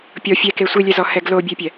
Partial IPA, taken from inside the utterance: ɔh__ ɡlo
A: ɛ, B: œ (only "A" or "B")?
A